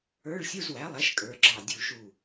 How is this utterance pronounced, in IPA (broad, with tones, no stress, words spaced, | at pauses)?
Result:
ə˞˧˥˧ɭsʲu˧˥˧zwæ˩˥ lˠæ˩˥ʃkʼə˞˩˧ɡ͡ǁɑ˧˩ dʲu˧˩ʃu˧˩